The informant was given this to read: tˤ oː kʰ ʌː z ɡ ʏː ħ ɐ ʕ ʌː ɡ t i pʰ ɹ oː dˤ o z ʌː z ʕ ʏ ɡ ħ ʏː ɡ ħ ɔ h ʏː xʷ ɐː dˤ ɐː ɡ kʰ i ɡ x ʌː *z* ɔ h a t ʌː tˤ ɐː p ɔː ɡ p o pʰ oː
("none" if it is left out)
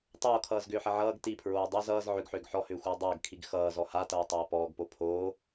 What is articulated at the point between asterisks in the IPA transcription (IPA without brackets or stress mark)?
z